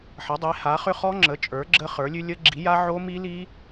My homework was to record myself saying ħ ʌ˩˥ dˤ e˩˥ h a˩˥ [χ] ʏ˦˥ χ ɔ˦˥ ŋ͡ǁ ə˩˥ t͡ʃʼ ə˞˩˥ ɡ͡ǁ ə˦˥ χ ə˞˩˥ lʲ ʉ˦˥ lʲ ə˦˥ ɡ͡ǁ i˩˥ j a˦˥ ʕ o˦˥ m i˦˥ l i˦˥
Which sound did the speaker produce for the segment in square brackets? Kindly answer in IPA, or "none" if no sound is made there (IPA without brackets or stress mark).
χ